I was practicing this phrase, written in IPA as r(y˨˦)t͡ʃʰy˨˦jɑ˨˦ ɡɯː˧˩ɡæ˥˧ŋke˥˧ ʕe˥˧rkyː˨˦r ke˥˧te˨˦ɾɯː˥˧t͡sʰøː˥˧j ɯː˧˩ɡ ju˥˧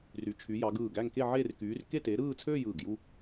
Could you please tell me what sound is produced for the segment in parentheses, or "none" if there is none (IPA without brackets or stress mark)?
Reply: y˨˦